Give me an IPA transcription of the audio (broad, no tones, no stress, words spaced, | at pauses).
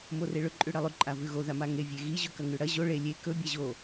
moreɭɵ ǃʼʉɽɐlˠʉ ǃʼavʉɣo ðamaŋe vʲeɣi ʑɵkɐŋʉɽɐ ʑo ɭe lʲe kɵ bʲaʑo